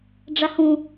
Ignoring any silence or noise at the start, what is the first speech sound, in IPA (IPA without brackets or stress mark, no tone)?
ɖ͡ʐ